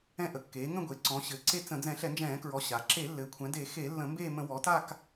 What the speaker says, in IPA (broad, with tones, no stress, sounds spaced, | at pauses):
ɛ̃˦˨ ʔ ə˩˧ kː eː˩˧ ŋ ə̃˦˨ ɡʷ e˩˧ ǀ ɔ̃˩˧ ɕ ɘː˩˧ ǀ e˦˨ t͡s ə̃˧˩˧ d͡z ɛ̃˧˩˧ ɬ ɛ˧˩˧ n d͡ʒ ɛ̃ː˧˩˧ k ɹ ɔ˩˧ ɕ a˩˧ ǁ e˧˩˧ lː ɘː˩˧ kʷʰ ɛ̃˩˧ d e˧˩˧ x e˧˩˧ lː ə̃˧˩˧ m b eː˦˨ m ə̃˧˩˧ w ɔ˩˧ t a˦˨ k